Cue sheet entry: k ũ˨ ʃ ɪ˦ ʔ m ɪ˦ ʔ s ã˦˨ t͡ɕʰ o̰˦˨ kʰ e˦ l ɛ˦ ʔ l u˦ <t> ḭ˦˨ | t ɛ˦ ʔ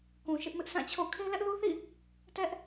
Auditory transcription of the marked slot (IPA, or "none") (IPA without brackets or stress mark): θ